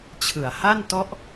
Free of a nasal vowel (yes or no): yes